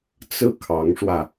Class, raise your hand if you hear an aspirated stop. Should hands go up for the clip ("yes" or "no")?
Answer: yes